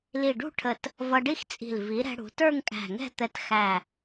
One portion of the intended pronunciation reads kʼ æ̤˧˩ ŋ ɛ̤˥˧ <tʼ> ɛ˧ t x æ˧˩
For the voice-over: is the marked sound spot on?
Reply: no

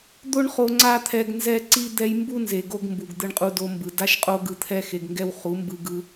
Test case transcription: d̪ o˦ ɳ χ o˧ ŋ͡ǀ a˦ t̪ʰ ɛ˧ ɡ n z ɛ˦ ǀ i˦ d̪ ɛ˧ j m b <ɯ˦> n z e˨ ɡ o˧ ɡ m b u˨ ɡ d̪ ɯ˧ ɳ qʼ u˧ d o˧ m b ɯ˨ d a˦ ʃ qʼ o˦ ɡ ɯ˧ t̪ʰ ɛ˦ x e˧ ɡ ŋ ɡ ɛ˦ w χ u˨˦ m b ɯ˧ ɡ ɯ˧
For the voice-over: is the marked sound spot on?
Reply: no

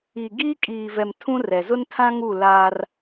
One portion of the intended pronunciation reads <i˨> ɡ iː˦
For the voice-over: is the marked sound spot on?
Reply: yes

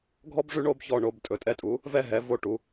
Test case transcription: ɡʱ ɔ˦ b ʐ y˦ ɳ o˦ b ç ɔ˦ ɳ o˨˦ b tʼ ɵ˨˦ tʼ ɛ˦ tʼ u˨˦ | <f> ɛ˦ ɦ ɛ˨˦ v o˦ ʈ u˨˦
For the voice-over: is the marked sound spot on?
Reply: no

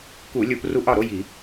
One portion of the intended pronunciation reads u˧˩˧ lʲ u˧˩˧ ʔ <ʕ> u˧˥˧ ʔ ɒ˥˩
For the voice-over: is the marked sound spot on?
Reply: no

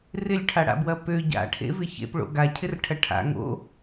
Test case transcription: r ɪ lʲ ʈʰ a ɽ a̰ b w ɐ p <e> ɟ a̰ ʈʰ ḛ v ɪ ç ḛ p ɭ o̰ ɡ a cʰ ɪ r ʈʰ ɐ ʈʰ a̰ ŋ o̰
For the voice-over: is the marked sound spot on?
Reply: no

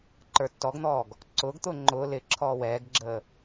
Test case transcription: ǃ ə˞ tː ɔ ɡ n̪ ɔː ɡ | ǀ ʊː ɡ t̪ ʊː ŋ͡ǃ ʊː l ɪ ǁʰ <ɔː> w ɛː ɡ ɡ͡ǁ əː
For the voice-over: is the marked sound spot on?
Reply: yes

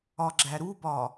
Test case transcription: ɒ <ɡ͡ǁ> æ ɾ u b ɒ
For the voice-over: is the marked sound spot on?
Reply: yes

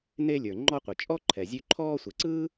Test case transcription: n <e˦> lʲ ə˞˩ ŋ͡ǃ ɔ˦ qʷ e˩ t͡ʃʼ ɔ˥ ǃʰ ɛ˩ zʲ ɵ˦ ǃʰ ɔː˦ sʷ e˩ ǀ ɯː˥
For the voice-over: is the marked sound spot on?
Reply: yes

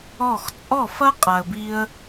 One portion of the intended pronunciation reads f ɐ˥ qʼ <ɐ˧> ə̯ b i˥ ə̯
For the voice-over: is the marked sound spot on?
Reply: no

